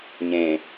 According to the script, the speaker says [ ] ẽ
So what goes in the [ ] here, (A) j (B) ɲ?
B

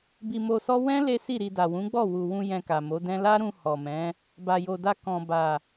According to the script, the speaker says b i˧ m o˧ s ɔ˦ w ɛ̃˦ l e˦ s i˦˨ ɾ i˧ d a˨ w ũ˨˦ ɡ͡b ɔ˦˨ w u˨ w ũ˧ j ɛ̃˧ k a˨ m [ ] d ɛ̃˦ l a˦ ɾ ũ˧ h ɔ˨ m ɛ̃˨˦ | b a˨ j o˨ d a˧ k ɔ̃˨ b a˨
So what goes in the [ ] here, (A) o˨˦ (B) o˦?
A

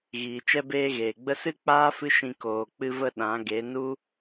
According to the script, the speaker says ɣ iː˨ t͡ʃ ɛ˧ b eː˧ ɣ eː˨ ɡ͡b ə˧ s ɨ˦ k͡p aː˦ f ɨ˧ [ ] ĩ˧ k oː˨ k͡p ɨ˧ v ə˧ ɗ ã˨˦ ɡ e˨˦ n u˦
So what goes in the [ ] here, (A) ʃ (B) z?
A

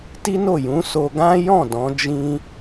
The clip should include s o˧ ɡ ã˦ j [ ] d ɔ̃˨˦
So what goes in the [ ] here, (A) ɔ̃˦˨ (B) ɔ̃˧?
A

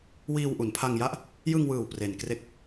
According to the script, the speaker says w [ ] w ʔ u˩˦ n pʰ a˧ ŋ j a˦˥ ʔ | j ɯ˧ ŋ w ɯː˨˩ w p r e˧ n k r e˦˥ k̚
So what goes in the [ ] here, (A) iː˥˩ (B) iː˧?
B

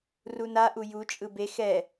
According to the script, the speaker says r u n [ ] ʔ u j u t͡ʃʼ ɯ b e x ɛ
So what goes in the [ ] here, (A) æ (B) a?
B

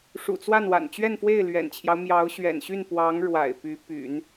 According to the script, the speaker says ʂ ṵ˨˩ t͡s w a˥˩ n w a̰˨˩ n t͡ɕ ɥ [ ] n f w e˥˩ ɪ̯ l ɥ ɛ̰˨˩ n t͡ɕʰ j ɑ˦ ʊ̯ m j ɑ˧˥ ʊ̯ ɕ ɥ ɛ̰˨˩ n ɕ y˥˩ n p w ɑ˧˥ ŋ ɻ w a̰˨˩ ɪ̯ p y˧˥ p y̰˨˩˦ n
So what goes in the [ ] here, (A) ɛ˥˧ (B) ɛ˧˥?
A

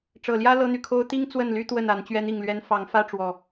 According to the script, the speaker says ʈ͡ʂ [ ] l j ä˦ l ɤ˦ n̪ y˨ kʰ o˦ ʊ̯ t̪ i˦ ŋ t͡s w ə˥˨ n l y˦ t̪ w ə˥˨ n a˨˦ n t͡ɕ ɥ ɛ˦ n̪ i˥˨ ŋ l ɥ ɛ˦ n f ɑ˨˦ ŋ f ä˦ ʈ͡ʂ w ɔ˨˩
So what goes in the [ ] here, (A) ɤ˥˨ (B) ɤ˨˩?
B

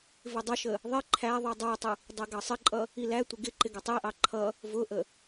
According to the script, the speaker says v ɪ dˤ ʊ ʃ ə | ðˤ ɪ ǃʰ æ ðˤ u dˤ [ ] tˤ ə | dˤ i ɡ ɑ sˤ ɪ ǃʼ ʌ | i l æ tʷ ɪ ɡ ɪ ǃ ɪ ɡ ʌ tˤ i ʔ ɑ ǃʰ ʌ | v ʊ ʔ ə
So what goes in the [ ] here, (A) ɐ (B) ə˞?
B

